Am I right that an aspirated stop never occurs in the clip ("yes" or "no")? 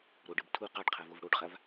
no